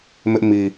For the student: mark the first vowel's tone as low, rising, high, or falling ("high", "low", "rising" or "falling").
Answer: high